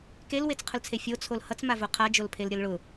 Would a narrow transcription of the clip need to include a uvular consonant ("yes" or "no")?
yes